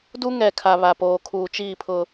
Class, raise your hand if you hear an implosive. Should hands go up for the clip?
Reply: no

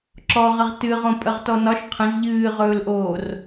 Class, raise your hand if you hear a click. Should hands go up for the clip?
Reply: yes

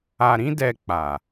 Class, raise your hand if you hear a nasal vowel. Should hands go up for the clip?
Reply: yes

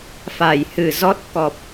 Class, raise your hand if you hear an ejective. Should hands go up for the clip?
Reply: no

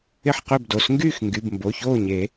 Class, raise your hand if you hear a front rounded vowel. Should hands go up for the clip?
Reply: yes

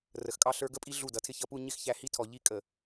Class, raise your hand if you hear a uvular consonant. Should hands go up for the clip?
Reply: no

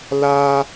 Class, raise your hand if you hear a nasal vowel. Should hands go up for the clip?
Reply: no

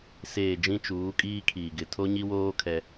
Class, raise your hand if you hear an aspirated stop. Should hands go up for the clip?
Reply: yes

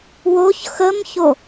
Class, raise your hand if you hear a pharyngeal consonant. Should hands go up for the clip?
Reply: no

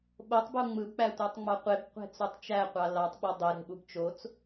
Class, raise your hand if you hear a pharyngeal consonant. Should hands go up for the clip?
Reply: no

